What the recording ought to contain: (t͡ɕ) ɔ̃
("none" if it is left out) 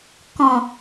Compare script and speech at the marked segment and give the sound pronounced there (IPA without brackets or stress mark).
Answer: k